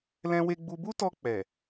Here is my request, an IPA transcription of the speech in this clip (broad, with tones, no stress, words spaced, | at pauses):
lɛ̃˦we˦ɡ͡bu˦ bu˦tɔ˧ k͡pɛ˨